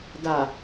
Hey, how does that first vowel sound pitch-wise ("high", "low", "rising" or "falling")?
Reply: low